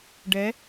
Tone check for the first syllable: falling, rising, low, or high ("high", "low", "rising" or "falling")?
rising